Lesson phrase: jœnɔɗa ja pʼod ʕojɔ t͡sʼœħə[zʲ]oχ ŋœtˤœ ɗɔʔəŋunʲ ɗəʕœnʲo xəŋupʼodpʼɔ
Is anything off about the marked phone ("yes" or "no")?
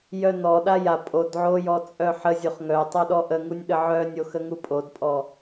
no